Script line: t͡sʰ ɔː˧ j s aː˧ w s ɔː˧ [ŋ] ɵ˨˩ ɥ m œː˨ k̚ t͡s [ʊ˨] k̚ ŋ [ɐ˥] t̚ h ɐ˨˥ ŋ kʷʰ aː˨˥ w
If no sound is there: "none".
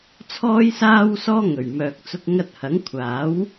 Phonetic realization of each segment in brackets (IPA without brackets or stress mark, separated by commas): ŋ, ʊ˧, ɐ˧